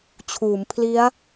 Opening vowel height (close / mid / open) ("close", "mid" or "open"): close